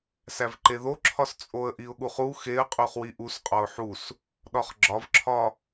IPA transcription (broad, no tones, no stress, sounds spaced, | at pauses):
s æ v ǃ e ð o ǁʰ ɒ s t͡sʼ o ə̯ ʔ i ʊ̯ ɠ u χ u x e ə̯ qʼ u χ w i ʔ u s qʼ ɒ ʊ̯ ħ u s | ɗ ɒ χ ɡ͡ǁ ɒ v ǁʰ ɒ